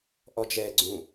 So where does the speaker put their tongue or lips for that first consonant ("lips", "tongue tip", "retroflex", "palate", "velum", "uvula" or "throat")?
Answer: throat